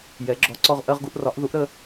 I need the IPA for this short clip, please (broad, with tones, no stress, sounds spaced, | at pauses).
j ɛ˩˥ ɡ͡ǁ ɔ˩˥ ǀ ɔ˦ ʁ ʔ ɜ˦ ʁ ɡ u˦ ʔ r ɒ˩˥ ʔ ð u˩˥ ʔ ɾ ə˦